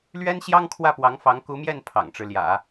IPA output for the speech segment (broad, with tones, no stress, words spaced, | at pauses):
lɥɛ˥nɕjɑ˥ŋ kʰwä˥˩pwɑ˧˥ŋfɑ˧˥ŋ ku˧˥mjɛ˥˩n pʰɑ̰˨˩ŋʈ͡ʂɻ̩˦ ljä̰˨˩˦